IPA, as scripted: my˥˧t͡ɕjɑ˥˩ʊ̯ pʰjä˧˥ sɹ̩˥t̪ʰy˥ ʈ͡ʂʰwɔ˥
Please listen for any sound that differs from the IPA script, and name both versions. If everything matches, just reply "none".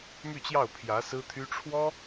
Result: none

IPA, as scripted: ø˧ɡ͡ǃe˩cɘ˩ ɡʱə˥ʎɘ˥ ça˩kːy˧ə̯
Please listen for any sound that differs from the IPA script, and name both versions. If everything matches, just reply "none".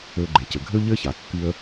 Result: ə˥ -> ø˥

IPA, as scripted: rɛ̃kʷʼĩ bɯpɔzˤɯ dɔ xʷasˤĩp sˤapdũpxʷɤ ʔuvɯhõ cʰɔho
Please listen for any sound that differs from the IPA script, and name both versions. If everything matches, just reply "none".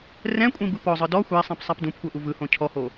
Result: none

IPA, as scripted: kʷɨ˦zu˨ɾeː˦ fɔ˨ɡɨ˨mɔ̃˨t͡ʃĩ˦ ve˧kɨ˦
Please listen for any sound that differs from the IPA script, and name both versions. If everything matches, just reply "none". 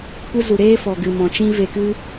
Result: none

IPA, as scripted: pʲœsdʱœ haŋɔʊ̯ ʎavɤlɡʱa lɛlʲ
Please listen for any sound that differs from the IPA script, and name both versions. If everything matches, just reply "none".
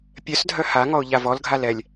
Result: ɤ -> ɔ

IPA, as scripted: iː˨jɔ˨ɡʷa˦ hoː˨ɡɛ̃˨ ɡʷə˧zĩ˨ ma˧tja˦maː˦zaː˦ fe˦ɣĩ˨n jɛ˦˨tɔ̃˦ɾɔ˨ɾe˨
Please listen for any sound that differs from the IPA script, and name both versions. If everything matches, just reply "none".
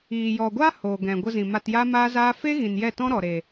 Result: none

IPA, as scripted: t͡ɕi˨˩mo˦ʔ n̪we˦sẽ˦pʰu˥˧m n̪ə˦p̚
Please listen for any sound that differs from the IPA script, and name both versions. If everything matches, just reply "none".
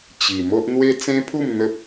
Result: s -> t͡s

